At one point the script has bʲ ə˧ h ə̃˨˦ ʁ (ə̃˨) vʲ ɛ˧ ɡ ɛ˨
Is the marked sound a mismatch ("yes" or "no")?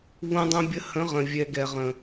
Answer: no